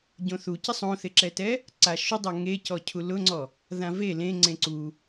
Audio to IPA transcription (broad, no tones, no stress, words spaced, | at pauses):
ɟõθucɪ sˤõθɪǁɛtɛ | ǀaʃʊdˤa ŋecɔ cʰulʊŋ͡ǀɔ | ðãve lẽ ŋ͡ǀẽǀu